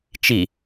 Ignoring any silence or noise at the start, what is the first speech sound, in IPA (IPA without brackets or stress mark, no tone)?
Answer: t͡ʃ